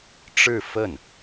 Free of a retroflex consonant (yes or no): no